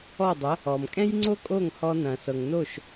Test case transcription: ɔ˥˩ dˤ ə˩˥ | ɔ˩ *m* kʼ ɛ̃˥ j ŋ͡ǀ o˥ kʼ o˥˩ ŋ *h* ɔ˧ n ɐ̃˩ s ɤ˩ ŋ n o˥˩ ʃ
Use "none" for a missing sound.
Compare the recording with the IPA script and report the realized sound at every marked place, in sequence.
m, h

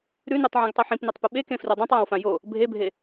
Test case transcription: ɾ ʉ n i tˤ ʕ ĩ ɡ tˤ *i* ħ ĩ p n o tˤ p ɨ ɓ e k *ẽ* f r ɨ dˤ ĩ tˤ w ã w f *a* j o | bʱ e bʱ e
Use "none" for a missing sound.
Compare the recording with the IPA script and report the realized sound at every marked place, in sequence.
ɨ, ẽ, ã

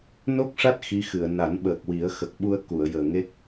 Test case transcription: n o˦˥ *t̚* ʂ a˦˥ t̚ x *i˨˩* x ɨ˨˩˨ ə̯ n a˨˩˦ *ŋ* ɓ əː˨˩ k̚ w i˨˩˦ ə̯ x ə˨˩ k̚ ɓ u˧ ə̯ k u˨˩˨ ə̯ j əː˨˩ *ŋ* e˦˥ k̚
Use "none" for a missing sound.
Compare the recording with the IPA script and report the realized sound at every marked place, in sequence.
k̚, i˧˥, n, ŋ

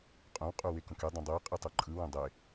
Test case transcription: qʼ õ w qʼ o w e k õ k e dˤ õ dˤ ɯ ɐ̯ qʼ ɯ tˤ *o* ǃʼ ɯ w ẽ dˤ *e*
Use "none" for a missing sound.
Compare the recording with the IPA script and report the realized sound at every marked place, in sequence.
o, e

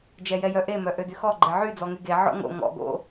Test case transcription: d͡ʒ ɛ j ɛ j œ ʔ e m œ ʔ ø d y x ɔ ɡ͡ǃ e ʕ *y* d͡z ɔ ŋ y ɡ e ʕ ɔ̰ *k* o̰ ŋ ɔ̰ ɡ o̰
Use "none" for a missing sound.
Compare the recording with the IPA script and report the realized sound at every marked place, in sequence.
y, ŋ

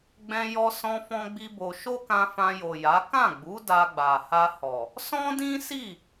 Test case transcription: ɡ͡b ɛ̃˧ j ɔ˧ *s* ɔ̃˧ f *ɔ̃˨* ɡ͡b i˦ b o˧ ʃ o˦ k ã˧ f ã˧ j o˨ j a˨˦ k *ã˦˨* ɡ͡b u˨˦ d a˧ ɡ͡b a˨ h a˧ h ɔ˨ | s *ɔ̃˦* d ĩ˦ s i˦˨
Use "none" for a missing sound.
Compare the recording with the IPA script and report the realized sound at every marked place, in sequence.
s, ɔ̃˧, ã˦˨, ɔ̃˦

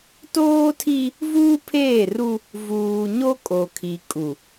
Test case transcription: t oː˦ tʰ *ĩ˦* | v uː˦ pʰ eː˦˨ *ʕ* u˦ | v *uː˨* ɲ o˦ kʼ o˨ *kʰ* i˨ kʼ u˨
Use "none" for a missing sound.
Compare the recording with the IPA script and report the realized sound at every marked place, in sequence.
i˦, r, uː˨, kʰ

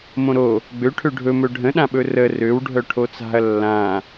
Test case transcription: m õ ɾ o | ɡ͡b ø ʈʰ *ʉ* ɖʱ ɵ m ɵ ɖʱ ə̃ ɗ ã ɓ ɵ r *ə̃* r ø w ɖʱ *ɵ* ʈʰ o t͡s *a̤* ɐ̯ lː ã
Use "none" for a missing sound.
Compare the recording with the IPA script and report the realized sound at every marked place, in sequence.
ø, ə, œ, a̤

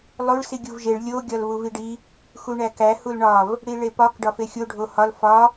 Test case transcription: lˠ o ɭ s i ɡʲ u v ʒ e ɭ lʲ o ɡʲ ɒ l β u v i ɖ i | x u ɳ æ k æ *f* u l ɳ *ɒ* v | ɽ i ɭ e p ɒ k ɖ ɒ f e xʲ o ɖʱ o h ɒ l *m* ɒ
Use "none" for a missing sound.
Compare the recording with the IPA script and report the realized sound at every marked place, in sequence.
h, ɒ, f

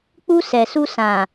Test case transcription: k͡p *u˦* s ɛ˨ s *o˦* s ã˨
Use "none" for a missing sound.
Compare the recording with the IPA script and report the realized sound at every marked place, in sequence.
u˦, u˦

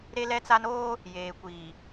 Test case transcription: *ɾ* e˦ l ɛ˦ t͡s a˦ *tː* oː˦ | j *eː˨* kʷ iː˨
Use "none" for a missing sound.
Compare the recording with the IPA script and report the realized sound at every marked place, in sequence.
ɾ, n, eː˨

